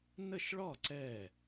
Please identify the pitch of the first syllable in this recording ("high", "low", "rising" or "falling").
falling